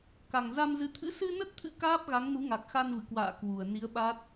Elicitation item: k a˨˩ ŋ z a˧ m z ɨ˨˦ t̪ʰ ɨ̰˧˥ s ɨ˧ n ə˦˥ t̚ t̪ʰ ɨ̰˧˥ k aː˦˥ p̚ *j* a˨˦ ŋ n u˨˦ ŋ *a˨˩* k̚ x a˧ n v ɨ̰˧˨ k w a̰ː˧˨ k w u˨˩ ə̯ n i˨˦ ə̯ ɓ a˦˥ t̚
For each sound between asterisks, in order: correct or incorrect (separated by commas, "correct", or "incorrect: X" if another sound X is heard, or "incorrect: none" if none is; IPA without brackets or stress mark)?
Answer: incorrect: ɣ, correct